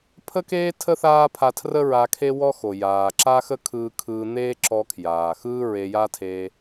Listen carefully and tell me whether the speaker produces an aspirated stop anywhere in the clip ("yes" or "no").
yes